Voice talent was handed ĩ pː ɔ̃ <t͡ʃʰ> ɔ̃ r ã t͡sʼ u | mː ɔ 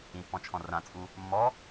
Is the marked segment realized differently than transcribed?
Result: no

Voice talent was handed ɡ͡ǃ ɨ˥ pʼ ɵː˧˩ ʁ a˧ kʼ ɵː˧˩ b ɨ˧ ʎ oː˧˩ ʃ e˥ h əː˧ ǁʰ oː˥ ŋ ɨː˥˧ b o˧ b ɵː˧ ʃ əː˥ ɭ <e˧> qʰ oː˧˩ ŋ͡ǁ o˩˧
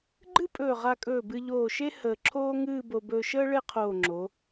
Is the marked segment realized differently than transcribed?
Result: yes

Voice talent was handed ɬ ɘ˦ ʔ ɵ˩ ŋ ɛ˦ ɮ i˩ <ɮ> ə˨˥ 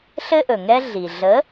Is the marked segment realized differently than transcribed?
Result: no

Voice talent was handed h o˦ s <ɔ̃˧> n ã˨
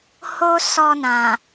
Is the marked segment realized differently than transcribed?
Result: yes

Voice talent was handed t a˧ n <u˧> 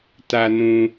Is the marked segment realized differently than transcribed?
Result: yes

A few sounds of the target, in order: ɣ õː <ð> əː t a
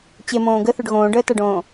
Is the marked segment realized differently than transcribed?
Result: yes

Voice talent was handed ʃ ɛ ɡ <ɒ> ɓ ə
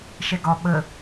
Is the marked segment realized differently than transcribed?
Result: no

